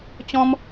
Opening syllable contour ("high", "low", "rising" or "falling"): high